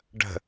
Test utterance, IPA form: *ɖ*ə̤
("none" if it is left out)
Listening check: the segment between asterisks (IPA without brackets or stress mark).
ɖ